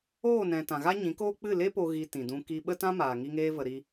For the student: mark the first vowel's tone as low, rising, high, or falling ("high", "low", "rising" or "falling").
falling